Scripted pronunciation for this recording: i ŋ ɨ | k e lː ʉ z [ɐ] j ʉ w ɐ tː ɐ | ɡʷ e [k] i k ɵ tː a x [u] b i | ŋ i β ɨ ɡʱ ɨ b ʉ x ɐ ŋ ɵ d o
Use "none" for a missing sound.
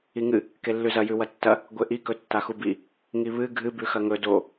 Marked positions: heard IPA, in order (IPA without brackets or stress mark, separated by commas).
ɐ, ʔ, u